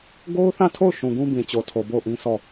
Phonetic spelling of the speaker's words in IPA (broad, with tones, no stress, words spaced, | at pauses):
ɡo˦ʊ̯θã˦˨tʰo˦˨ʊ̯ ʃũ˨ɡũ˦bĩ˨ t͡ɕo˨tʰo˨bo˦˨ʊ̯ʔĩ˦ sʰɔ˦˨